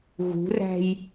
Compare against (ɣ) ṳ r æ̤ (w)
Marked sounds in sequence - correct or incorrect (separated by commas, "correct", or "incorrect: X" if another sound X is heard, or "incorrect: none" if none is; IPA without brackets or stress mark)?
correct, incorrect: j